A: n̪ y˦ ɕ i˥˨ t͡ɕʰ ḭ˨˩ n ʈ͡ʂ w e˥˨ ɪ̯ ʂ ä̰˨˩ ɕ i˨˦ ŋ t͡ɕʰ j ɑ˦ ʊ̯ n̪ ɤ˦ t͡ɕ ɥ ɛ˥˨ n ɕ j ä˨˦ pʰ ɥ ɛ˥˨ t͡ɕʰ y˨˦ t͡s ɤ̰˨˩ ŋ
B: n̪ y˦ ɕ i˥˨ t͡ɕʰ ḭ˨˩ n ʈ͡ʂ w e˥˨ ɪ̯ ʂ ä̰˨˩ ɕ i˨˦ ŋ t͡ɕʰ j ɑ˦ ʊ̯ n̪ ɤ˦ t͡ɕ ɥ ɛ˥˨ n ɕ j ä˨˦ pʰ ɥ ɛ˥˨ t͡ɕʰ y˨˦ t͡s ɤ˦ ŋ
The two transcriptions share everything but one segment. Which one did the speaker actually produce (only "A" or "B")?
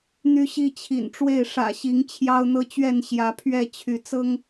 B